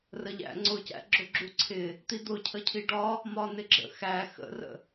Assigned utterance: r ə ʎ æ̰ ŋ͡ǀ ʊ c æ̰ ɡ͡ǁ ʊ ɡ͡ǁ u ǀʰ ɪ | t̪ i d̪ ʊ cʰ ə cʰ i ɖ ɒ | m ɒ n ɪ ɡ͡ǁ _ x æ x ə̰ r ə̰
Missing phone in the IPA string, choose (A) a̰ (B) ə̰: B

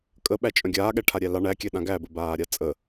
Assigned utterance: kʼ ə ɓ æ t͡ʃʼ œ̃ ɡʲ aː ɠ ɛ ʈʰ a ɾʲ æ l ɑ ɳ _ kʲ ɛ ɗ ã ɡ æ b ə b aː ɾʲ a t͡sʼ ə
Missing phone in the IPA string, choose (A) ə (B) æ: B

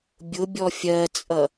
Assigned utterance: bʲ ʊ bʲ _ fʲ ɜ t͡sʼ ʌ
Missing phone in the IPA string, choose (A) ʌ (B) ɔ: B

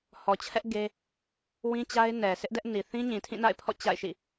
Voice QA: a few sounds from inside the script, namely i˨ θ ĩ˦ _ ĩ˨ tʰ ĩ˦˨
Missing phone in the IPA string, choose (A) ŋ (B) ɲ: B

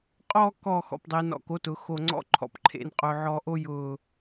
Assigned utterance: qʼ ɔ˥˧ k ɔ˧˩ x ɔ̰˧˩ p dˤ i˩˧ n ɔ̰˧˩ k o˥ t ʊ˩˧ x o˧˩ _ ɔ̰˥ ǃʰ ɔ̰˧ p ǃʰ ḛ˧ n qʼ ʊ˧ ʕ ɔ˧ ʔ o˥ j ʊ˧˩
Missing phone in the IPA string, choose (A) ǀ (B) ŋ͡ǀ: B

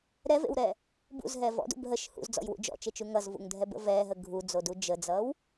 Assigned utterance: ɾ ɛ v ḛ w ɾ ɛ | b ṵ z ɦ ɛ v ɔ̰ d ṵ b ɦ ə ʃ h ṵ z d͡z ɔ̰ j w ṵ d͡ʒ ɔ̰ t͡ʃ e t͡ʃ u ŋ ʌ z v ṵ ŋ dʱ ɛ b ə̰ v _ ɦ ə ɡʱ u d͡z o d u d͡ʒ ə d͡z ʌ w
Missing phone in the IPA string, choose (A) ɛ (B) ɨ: A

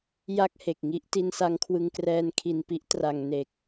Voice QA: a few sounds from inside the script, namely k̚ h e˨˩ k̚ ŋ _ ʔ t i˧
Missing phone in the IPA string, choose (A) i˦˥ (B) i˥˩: A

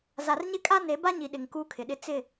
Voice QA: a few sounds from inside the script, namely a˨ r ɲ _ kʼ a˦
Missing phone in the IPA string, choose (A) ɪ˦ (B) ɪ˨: A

